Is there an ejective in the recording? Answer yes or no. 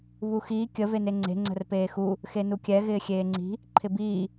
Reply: no